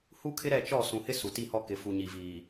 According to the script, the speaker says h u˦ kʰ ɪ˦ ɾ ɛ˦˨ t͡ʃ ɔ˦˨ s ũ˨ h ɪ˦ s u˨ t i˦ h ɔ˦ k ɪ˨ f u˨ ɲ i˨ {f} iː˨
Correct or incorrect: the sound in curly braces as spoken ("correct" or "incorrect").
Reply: incorrect